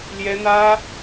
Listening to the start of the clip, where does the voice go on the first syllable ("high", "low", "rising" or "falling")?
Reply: high